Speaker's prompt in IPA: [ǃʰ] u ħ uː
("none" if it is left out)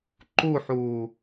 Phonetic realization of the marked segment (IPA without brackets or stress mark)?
ǃ